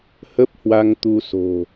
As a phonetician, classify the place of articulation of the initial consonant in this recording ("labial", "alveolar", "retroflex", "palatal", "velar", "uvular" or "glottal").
glottal